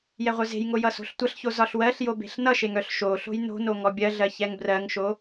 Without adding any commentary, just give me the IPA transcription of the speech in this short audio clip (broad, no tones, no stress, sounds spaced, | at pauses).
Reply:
j ɛ ʁʷ œ z e̤ j ŋ o j ʌ s o̤ ɬ tʷ ʌ ɬ ç o z ɒ ɬ w ɜ ɬ j o b e̤ ɬ n ʌ ʃ e ŋ œ ɬ ʃ o ɬ o̤ j n o̤ n o ŋ ɔ bʲ ɜ ɮ ɜ ç ɛ ŋ b r ɜ ŋ ʃ o